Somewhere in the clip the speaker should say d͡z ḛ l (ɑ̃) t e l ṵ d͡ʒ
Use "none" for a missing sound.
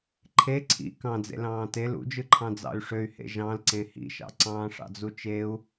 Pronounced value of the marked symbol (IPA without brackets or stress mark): ɑ̃ː